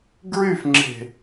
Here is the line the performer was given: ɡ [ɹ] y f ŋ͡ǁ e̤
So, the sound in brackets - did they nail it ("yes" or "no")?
yes